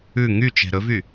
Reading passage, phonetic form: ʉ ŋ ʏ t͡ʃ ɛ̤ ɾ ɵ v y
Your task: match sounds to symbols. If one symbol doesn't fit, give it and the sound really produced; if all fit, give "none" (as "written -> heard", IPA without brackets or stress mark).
ʏ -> y